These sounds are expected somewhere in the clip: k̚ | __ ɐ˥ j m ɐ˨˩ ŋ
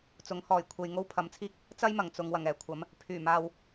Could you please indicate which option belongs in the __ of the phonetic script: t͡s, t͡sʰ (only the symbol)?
t͡s